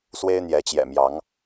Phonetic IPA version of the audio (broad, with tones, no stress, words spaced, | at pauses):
swe˦ɪ̯n̪jɛ˨˦t͡ɕjɛ̰˨˩mjɑ˨˦ŋ